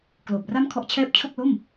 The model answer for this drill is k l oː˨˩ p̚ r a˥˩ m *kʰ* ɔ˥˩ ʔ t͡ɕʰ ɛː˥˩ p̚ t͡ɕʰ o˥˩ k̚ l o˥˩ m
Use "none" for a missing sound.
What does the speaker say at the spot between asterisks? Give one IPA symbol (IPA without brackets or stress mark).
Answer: kʰ